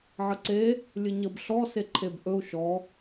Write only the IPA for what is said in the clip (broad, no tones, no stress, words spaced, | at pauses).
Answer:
ʕəǀe | lʲɨɲəb ɬɔ seǃʰebʔɵu̯ ʃɔ